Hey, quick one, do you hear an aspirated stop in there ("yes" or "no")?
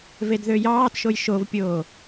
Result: no